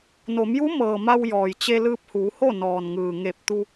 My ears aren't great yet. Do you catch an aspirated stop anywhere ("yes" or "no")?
no